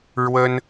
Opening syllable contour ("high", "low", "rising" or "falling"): high